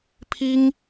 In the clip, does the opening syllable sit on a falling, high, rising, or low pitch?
high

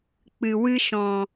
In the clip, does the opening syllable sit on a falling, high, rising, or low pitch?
low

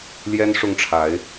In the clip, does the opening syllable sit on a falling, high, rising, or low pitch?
high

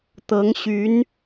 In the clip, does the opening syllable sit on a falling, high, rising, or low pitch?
rising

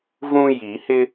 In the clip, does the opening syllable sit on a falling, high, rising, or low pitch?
high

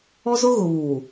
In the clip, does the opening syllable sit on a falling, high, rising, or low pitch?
high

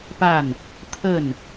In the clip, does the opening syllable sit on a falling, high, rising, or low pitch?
falling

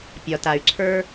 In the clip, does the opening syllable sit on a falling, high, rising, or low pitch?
low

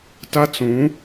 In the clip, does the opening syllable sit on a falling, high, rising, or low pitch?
high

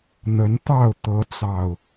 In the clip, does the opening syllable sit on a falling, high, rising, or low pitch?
rising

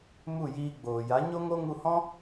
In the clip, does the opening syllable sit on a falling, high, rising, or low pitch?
falling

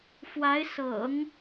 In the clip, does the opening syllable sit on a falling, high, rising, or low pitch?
rising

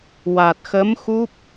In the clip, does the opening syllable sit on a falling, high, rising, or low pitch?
low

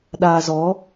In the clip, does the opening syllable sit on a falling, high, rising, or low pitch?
low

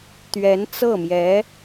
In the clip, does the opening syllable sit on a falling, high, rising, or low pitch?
rising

